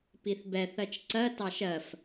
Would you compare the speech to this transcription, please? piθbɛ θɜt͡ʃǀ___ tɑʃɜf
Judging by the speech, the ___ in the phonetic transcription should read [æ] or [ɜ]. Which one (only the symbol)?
ɜ